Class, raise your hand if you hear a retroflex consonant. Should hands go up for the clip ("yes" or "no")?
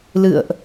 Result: no